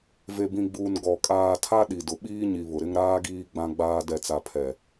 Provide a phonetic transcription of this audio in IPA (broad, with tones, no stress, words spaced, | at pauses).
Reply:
ve˨bĩ˨ɡ͡buː˨n ɡɔ˨ kʼaː˨tʰa˦ ɗi˨dʊ˨ ɓiː˦ɲi˨ βʊ˨ɾɪ˦ŋɾaː˦ɡiː˦ ɡ͡bã˦ɡ͡baː˦ dɛ˨t͡sa˨pʰɛ˨